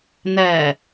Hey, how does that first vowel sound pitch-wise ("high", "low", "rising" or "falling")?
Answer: low